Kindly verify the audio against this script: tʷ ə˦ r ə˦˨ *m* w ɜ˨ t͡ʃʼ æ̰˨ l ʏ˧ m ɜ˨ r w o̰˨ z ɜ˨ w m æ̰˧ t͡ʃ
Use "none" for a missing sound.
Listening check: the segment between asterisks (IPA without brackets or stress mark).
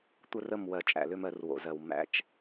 m